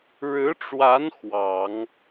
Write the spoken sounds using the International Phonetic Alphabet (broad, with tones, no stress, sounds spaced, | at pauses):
ɻ ɻ̩˧˥ ʈ͡ʂ w a˧˥ n x w ɑ˨˩˦ ŋ